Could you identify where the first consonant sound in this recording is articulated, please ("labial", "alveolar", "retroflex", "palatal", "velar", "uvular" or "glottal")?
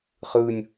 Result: uvular